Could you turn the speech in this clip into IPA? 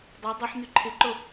dˤʏu̯ dˤoħn̪y ǃʰɪǃo

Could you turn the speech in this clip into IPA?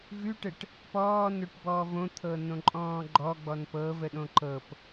vʉʈəʈ | pɔːnoʈbɔːv õt̪ʰɤnõǃʼɔ̃ː ɡ͡ǃɔɡ͡bɔn pɤvəɗõ ǃɤp

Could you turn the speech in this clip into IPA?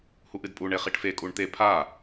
huʔɨdpʼu ɳeχiʈfe kʼuɳt̪e pʰa

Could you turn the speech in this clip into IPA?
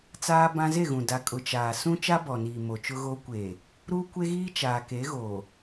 t͡saː˦bã˦ ze˦˨ɣũ˨ da˨kʼʊ˨ t͡ʃaː˨sũ˦ t͡ʃa˦bɔ˨niː˨ mo˨t͡ʃʊ˦ɣo˦ kʷeː˨ | ɾuː˦kʷe˦ɣiː˦ t͡ʃaː˨ke˨˦ɣoː˨

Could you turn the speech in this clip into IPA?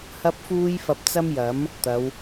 hɐ˥p̚fuː˥jfɐ˧p̚ t͡sɐ˥mjɐ˨˥m | t̪ɐ˨˧w

